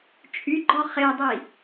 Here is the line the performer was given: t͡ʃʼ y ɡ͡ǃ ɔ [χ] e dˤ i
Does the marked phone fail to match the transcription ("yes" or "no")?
no